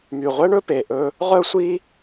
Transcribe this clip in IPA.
my˨˩ʁʷɛ˦ɳɵ˦ pe˨˩ʔɵ˦ | ʁœ˦sʷi˦

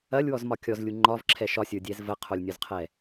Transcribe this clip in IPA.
ɐlʲwɔzmɒ kʲɔzlʲu ŋ͡ǃɒvǁʰɛ ʃɒsʲə˞dʲɛz vəqʰolʲnʲɔzqʰɛ

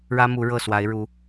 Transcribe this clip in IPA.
ɻä˥mu˧˥ ɻɤ˥˩swa˧˥ɪ̯ɻu˧˥

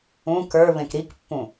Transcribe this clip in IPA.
ũ kə˞ βẽkɾikpːũ

